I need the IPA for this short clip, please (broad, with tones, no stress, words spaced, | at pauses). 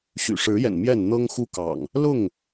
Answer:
ɕy̰˨˩ʂɻ̩˨˦jɛ̰˨˩n mjɛ˥˨n n̪ɤ˦ŋxu˦kɑ̰˨˩ŋ | lʊ˥˨ŋ